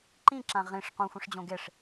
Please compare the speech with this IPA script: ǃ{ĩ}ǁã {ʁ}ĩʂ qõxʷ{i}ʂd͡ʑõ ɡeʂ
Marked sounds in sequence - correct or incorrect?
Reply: correct, correct, incorrect: ĩ

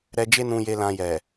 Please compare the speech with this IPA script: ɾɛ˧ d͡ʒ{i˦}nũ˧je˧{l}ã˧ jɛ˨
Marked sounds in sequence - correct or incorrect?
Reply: incorrect: e˦, correct

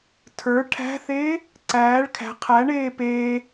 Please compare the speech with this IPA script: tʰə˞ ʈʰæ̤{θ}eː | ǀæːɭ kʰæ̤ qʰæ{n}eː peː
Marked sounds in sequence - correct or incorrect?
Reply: correct, incorrect: ɳ

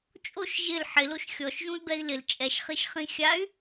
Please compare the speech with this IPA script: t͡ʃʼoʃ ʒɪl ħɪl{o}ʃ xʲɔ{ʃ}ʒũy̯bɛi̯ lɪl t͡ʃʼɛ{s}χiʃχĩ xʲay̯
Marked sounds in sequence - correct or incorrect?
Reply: correct, correct, incorrect: ʃ

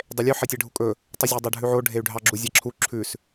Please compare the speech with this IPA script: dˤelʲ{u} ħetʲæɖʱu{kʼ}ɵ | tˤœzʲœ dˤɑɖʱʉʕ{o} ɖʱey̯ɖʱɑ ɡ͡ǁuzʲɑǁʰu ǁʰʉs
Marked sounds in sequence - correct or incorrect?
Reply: incorrect: ʉ, correct, correct

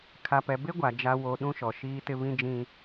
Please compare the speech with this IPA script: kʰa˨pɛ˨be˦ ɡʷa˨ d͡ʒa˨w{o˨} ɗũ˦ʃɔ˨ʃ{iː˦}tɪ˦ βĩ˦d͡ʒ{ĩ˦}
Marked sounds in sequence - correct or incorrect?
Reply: correct, correct, correct

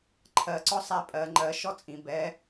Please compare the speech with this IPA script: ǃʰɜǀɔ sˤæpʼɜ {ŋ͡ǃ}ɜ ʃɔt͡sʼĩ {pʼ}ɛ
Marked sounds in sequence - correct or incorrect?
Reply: correct, incorrect: b

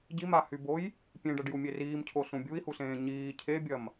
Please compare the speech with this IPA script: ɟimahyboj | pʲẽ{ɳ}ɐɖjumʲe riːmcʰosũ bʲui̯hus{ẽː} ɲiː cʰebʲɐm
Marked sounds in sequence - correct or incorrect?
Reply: incorrect: ɖ, correct

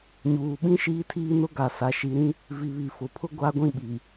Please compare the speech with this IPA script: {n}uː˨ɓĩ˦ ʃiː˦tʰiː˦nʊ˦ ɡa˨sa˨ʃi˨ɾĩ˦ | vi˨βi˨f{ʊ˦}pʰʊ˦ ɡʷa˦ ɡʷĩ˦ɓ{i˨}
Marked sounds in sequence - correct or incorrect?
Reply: incorrect: ɲ, incorrect: ʊ˨, correct

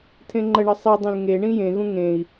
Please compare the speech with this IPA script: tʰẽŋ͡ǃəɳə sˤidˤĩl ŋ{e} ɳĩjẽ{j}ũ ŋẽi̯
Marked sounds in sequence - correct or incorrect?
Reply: correct, incorrect: ɣ

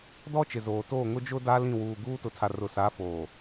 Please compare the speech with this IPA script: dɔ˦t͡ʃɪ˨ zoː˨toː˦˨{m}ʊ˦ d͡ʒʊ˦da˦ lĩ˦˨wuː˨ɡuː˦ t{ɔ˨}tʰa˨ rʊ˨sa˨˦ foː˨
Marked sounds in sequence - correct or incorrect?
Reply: incorrect: ŋ, incorrect: ʊ˨

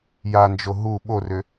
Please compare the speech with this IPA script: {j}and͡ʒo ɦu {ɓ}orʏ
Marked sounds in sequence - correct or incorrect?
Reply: correct, correct

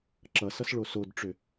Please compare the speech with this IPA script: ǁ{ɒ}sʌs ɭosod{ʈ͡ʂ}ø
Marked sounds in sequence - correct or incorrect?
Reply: incorrect: ʌ, correct

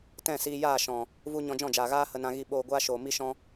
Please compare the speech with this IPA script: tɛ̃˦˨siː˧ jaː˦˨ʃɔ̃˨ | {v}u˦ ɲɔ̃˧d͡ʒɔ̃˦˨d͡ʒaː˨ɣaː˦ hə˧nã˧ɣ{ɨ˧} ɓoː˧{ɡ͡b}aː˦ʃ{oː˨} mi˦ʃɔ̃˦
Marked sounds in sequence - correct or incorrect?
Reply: correct, incorrect: i˧, incorrect: ɡʷ, correct

